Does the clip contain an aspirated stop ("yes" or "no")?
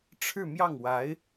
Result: yes